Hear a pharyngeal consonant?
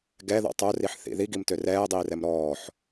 yes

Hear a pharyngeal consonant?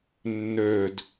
no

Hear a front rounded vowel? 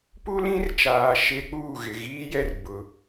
no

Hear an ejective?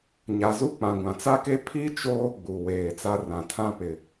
no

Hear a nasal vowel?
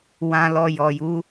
yes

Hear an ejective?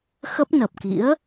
no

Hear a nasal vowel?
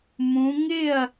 yes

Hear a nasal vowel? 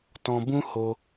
yes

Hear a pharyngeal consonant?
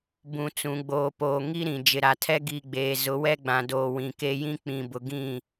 no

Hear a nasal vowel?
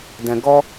yes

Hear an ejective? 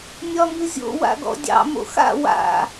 no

